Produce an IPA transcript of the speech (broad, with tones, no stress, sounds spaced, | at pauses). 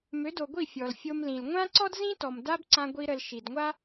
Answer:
m ø˨˦ d o˨ ɡʷ i˦˨ fʲ ɔ˨ l fʲ o˧ m l ĩ˨ l ŋʷ ã˦ ǀ ɔ˦ d z ĩ˦ t ɔ˨ m d a˦ b ǀ ã˧ ɡʷ i˧ ɾ ə˨ l ʃ i˨ d ŋʷ a˦